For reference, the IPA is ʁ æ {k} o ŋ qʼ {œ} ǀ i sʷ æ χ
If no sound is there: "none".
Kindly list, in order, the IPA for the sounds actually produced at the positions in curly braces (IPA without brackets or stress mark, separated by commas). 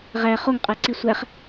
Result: χ, æ